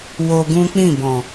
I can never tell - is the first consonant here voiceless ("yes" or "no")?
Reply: no